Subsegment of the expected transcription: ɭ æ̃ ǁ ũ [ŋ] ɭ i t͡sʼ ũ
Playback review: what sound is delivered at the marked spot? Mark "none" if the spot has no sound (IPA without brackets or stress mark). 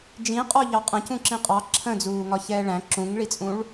ŋ